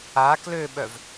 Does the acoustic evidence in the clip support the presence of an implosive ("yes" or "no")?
yes